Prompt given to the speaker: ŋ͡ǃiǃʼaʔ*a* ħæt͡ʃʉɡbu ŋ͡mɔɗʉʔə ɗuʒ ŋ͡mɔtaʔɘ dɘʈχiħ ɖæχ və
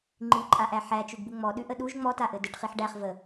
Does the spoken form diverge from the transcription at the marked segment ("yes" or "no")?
yes